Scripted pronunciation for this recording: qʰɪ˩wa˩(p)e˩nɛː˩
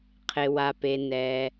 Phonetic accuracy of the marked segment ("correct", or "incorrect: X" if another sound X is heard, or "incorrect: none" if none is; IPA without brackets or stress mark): correct